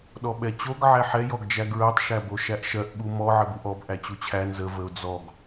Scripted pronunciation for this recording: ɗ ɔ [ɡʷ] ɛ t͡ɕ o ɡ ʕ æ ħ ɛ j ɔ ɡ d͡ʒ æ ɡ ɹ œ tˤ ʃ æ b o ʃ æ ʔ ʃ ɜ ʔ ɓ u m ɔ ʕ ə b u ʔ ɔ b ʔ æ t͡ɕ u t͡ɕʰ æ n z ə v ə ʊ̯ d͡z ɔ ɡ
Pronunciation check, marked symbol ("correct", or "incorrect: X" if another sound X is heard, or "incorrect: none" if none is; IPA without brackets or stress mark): incorrect: ɓ